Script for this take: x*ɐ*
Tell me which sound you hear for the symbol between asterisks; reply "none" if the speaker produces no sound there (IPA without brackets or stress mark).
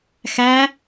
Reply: æ